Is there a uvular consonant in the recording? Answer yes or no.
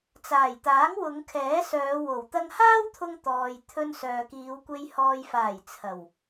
no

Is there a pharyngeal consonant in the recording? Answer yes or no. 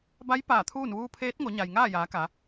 no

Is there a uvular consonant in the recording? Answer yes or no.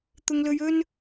no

